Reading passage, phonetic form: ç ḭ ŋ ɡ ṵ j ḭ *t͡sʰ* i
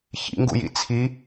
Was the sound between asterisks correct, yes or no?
yes